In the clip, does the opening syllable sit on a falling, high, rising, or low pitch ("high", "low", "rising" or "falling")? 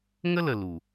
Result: high